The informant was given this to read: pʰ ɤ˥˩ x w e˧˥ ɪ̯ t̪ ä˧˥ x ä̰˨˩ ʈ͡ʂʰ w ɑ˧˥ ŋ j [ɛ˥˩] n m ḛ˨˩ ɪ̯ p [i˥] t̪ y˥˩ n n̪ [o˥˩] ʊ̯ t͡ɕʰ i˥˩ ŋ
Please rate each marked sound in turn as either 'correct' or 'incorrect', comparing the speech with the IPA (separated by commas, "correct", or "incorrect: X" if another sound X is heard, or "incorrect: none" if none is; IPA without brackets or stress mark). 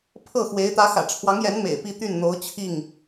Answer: incorrect: ɛ˧˥, incorrect: i˥˧, incorrect: o˧˥